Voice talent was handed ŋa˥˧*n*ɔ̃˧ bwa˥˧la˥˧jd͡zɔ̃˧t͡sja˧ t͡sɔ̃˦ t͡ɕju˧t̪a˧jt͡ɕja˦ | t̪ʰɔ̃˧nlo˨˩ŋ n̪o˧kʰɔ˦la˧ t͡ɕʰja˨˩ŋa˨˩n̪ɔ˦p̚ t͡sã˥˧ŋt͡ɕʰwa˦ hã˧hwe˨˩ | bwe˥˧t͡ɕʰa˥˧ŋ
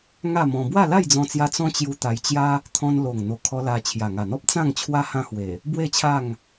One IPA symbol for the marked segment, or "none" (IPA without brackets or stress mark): m